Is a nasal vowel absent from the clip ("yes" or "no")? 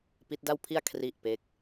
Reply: yes